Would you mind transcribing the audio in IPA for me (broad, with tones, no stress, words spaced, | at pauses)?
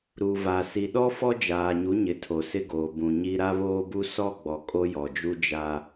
ɾu˨va˨ si˨ɗɔ˦ fɔ˦d͡ʒaː˨ɲu˨˦ɲɪ˨ tʰo˨sɪ˦ɡoː˨ bũ˨ɲi˦ ɾa˦βoː˦bu˦ sɔ˦˨ɡ͡bɔ˨ kʼo˦jɔ˨d͡ʒu˦ d͡ʒa˦